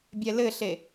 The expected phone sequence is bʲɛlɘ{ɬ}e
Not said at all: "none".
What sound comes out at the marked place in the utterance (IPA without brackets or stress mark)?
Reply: ɬ